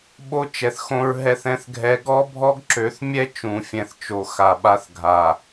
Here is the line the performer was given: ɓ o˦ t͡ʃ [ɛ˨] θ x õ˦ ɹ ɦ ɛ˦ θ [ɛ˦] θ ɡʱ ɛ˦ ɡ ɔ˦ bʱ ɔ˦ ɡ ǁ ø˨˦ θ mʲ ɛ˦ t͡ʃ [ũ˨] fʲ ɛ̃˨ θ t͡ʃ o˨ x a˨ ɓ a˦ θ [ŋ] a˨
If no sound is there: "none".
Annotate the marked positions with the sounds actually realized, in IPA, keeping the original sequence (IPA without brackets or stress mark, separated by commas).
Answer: ɛ˨, ɛ̃˦, ũ˨, ɡʱ